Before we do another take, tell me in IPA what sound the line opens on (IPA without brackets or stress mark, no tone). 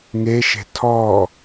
ŋ